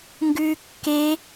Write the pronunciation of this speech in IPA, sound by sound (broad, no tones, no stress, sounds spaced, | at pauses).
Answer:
ŋ ɡ ʉː kː e